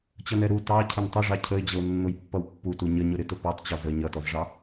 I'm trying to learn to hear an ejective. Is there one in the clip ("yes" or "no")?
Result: no